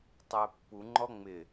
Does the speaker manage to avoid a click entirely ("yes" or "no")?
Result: no